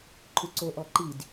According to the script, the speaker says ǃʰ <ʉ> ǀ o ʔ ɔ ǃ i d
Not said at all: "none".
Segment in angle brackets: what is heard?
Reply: ʉ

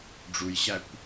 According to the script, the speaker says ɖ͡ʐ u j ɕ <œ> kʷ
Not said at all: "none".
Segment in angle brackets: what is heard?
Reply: æ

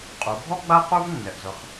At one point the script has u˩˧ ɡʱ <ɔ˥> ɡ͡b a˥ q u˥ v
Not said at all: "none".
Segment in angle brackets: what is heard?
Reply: ɔ˥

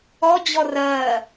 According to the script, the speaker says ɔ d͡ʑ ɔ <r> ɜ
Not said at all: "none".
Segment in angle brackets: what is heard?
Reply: r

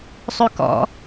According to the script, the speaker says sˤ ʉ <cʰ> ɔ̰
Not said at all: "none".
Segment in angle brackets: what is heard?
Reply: k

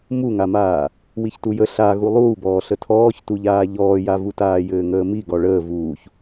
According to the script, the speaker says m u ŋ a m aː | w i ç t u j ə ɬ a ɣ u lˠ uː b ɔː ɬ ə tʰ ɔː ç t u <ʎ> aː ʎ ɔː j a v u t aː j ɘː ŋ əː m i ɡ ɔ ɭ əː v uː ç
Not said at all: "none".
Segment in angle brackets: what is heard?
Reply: ʎ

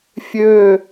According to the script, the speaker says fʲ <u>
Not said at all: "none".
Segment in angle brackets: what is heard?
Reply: ø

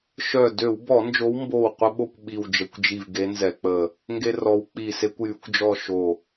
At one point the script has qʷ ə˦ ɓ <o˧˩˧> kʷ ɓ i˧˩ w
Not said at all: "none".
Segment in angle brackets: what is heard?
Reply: o˥˨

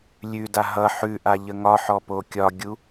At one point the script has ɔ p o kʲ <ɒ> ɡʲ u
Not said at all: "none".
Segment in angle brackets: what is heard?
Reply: ɒ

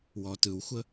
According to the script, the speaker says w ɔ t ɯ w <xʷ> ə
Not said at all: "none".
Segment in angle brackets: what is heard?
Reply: xʷ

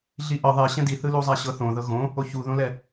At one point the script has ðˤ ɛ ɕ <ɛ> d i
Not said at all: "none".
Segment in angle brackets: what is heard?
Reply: ɛ̃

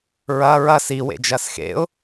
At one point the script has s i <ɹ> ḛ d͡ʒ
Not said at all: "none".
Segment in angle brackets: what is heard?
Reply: w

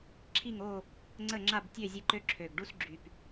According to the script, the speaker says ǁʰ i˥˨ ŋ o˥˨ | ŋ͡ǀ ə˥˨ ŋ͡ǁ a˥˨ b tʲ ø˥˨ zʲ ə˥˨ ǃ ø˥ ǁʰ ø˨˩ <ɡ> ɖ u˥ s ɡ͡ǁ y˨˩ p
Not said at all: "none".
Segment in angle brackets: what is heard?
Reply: ɡ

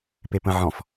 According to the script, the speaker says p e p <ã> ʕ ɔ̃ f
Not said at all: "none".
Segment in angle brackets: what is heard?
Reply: ə̃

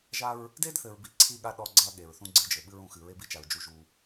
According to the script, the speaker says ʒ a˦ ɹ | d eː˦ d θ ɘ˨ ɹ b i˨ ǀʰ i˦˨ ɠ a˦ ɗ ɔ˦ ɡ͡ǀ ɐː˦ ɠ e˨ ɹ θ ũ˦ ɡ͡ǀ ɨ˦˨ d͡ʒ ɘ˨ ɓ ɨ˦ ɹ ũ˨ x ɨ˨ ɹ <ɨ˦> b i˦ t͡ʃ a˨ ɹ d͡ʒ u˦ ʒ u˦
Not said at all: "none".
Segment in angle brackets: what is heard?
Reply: e˦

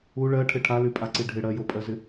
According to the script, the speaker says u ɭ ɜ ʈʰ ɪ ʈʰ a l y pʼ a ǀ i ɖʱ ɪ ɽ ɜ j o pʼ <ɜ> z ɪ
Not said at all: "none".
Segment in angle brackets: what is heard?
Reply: ɜ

